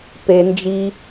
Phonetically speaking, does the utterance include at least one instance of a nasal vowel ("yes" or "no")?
no